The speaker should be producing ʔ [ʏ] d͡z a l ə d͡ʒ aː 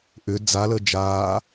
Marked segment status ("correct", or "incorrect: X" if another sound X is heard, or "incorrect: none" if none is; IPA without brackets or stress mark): correct